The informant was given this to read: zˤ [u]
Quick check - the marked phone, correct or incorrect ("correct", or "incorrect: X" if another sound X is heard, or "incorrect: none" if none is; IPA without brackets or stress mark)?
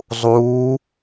incorrect: uː